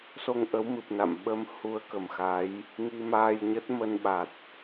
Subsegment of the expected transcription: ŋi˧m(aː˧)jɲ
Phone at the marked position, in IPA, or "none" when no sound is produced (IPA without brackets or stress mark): aː˧